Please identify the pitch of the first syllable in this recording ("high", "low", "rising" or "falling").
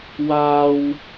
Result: high